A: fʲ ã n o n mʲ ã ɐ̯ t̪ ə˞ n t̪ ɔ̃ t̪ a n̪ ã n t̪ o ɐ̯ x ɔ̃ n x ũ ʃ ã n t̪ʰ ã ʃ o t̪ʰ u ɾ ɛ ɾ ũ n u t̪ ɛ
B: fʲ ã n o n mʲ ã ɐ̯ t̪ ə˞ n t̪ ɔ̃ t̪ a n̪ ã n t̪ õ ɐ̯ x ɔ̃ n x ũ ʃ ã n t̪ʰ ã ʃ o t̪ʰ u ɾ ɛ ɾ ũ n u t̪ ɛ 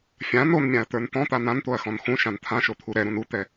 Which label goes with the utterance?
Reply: A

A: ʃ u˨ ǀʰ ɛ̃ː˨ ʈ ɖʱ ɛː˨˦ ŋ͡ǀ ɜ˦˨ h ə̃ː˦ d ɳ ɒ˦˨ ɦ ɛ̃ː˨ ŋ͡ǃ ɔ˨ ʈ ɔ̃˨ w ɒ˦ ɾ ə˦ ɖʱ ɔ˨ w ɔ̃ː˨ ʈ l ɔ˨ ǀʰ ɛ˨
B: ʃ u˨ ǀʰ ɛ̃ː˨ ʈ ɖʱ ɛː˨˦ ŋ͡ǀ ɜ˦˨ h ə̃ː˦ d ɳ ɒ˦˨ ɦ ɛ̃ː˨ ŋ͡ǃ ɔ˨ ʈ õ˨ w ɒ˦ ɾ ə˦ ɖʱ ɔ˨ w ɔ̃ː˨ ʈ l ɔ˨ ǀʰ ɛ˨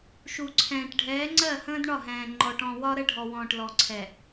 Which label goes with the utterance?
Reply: A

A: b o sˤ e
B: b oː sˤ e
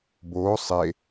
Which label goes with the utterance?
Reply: B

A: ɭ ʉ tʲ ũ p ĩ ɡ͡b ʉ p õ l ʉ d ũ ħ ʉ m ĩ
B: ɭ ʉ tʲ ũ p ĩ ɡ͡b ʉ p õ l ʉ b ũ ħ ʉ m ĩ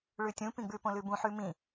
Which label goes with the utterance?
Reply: B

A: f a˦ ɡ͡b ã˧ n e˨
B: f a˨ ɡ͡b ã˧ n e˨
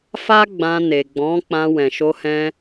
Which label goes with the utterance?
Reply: A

